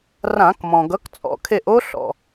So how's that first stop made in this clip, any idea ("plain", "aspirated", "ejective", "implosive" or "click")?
plain